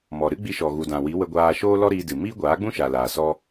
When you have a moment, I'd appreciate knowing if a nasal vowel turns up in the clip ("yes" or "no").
yes